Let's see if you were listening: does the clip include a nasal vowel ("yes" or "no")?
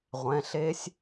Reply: yes